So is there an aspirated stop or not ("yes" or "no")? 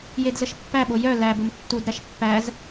no